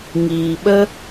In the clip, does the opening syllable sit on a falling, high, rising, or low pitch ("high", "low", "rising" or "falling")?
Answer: low